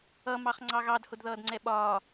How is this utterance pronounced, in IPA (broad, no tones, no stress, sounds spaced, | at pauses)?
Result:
ʌ m ɑ χ ŋ͡ǀ ɑ ɣ ɑ d h ʊ d ð ʌː d ŋ͡ǀ ɛ ɓ ɒː